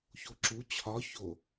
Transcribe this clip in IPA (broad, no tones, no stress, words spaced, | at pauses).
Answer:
çoǁu t͡ɕʰɒ ço